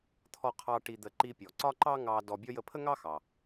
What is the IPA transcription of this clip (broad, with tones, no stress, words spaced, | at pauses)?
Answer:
t̪ʰɔ˧qʰɑ˧ ʈi˧d̪ə˧ ǃi˧pʲɔ˩ǀɒ˥ ǃɑ˥ŋɑ˧ dɔ˧bʲɔ˥ jə˧pʰə˥ŋɑ˥xɑ˩